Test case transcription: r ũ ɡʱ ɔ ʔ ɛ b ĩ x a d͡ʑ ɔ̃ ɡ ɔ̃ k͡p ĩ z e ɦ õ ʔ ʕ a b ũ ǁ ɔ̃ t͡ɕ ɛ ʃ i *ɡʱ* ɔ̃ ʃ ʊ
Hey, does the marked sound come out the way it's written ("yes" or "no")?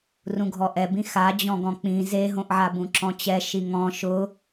no